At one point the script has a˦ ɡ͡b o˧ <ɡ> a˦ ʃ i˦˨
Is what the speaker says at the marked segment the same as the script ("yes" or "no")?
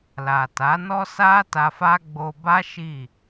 no